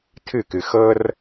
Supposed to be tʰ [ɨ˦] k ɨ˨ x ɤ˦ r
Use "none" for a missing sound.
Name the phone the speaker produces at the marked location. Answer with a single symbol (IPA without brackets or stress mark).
ɨ˦˨